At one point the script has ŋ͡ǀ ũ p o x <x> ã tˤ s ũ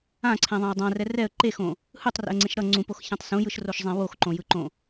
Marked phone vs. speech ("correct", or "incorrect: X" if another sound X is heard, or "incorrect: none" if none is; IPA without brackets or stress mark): incorrect: ç